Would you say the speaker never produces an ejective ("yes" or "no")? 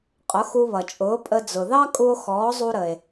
no